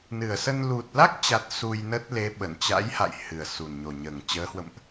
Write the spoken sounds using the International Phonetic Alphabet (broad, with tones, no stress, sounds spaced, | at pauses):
n ɨ˨˩ ə̯ s ə˧ n l u˨˩ t̚ l a˦˥ k̚ t͡ɕ a˨˩ t̚ s u˧ j n ə˦˥ t̚ l e˨˦ ɓ ə˧˩ n t͡ɕ a̰˧˥ j h a̰˧˨ j h ɨ˨˩ ə̯ s u˨˩ n ɲ o˨˩ ɲ əː˨˩ ŋ t͡ɕ əː˨˦ h w ə̰˧˨ m ʔ